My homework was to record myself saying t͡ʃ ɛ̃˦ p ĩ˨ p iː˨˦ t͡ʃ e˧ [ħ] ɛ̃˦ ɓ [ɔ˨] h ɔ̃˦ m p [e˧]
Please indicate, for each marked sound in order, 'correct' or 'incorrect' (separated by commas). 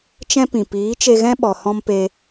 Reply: incorrect, correct, incorrect